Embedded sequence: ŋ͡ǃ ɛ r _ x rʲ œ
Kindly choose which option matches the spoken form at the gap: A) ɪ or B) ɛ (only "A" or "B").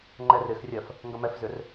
A